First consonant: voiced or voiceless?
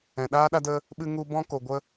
voiced